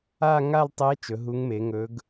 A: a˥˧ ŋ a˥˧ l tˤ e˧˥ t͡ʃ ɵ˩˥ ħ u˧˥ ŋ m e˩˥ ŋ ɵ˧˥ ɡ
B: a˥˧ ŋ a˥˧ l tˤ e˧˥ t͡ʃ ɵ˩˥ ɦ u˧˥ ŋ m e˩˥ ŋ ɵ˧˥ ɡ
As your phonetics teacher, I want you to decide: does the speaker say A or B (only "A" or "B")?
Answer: B